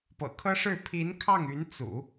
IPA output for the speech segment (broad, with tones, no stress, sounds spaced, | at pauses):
p ɤ̰˨˩ kʰ ɤ˥ ʂ ɻ̩˥˩ pʰ i˧˥ n kʰ ɑ˥˩ ŋ y˧˥ n t͡s ṵ˨˩˦